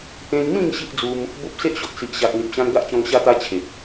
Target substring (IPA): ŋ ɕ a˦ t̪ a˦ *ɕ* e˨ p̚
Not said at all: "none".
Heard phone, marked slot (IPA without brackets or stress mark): t͡ɕʰ